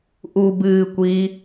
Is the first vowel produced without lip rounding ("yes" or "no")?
no